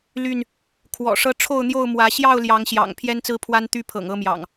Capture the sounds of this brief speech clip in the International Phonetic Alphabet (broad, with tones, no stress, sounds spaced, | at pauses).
l y˥˨ n | kʰ w ɔ̰˨˩ ʂ ɤ˦ ʈ͡ʂʰ o˥˨ ʊ̯ n̪ j o˥˨ ʊ̯ m w ä˨˦ ɕ j ɑ˥˨ ʊ̯ l j ɑ˨˦ ŋ ɕ j ɑ̰˨˩ ŋ pʰ j ɛ˦ n t͡s ɹ̩˦ pʰ w a˦ n t̪ y˦ pʰ ɤ̰˨˩ ŋ ɤ˥˨ m j ɑ̰˨˩ ŋ